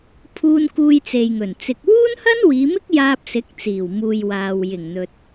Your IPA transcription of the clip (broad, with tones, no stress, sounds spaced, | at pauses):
pʰ uː˧ n k uː˧ j t͡s e˨ j ŋ ɵ˨˩ n t͡s ɪ˨ k̚ w uː˥ n h ɐ˥ n w iː˨˧ m ɪ˥ k̚ j aː˧ p̚ s ɪ˨˥ k̚ t͡s iː˨˩ w m uː˨ j w aː˨ w j ɪ˨˩ ŋ n̪ ɵ˨ t̚